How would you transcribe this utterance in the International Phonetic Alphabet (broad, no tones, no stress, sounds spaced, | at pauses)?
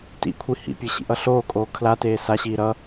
t ḭ kʷʰ i h ḭ pʲ e ɕ ḭ ʔ ʌ ɬ oː kʼ oː kʰ l a t eː s a ɕ iː ɾ ʌ